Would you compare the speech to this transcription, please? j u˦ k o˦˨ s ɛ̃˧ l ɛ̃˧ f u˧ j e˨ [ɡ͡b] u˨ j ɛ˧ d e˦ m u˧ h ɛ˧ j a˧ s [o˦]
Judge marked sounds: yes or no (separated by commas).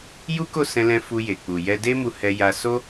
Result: no, yes